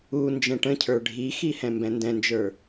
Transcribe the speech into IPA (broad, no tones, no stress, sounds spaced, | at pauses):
u n d͡ʒ ɛ̃ ʈ ə̃ cʰ ə˞ ɖʱ i x i h ɛ̃ m b ɛ̃ n d ɛ̃ n d͡ʒ ə˞